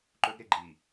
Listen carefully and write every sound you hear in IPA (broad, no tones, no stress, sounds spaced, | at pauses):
ǃ ɵ ɡ ɾ e ɡ͡ǃ i